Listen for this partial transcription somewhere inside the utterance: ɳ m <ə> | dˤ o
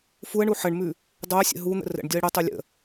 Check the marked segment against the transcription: incorrect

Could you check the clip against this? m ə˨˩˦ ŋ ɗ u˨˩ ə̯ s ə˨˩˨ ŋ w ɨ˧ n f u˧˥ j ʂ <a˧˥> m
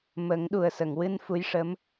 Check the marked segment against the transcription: incorrect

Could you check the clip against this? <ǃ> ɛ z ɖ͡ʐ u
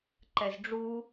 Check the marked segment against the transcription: correct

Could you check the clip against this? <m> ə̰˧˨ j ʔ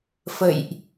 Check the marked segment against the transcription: incorrect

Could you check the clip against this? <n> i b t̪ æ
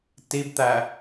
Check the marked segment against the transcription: incorrect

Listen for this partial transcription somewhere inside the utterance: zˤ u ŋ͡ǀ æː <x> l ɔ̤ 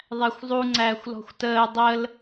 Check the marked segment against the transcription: incorrect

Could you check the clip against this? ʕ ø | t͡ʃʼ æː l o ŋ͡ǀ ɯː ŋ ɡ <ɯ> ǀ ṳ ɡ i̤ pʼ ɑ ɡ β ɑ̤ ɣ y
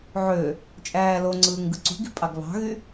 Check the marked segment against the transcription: correct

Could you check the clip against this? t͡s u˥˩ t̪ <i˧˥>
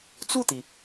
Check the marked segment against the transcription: incorrect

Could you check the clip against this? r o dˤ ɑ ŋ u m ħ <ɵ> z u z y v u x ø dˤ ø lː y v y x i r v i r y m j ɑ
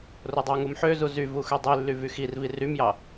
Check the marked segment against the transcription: incorrect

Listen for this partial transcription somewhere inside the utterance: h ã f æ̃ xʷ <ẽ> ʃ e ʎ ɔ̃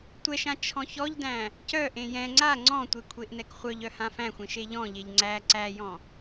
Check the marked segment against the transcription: correct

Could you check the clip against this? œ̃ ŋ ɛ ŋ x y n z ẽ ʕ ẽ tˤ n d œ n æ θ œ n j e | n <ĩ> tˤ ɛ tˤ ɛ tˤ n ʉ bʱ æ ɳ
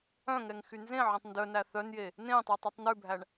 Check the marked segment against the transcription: incorrect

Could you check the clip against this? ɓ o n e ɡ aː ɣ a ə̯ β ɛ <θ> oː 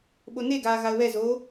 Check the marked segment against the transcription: incorrect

